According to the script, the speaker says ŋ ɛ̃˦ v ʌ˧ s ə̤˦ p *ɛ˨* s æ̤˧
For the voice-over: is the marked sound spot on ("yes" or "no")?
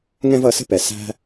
yes